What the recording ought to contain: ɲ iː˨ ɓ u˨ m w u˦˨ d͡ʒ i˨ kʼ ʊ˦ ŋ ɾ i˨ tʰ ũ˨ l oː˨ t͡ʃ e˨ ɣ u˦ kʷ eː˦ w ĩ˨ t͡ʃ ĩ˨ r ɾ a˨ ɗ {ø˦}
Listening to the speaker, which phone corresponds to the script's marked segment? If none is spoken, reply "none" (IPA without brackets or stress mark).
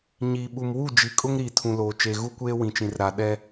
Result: ɛ˦